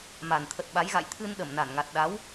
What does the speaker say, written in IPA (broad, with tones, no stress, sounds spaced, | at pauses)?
m a˨˩ n t̪ʰ ə˨˩ t̚ ɓ a˨˦ j ɣ a̰˧˨ j t̪ʰ ɨ˧ n ɗ ə˧˩ m n a˧˩ n ŋ a˨˩ t̚ ɗ a˨˦ w